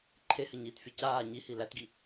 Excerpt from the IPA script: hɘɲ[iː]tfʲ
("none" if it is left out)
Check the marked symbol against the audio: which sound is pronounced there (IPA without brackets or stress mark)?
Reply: iː